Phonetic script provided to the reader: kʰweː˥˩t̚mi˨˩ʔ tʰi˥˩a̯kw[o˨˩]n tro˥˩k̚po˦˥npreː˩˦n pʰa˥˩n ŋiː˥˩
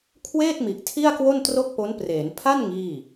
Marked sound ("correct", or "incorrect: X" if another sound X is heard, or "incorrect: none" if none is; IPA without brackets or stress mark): incorrect: o˥˩